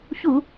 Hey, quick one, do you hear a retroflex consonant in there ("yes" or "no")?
no